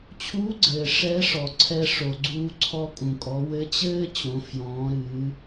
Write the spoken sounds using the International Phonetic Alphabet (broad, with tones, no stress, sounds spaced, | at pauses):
t͡ɕʰ uː˧˥ ɡ͡ǀ ɘː˩ ʂ ɛ˧˥ ʂ ɔ˩ ǀʰ ɛ˧ ʂ o˩ ɡ͡ǀ uː˧ ǀʰ ɔ˧ kʼ ũ˩ kʼ ɔ˩˧ w ɘ˧˥ t͡ɕ ɘː˥ t͡ɕ õ˩˧ f j ɔ̃ː˩˧ ɾ ɨː˩˧